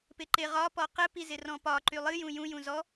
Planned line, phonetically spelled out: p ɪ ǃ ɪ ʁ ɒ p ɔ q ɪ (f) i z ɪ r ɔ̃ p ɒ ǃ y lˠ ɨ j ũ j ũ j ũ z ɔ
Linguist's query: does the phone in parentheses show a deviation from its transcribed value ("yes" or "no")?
yes